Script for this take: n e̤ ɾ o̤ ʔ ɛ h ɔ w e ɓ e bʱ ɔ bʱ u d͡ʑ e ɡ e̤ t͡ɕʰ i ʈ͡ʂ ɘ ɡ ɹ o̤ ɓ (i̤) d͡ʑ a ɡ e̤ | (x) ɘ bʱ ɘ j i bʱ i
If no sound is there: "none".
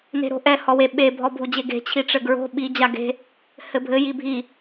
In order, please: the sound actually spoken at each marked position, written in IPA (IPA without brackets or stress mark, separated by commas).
i, h